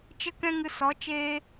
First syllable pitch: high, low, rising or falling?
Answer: high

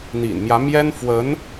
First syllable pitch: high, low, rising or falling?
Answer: low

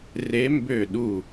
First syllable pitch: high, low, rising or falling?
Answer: rising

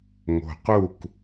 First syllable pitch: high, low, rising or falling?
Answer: low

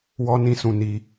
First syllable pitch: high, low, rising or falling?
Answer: high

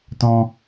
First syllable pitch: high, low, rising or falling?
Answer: high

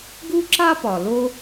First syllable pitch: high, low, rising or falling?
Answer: high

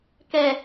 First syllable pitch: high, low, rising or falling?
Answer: low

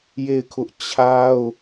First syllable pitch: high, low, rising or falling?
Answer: falling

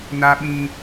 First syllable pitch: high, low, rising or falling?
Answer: high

